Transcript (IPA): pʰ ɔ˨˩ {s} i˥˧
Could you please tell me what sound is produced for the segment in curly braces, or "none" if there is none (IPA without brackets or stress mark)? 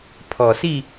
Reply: s